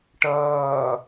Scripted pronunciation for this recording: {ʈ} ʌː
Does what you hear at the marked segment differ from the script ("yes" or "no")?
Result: no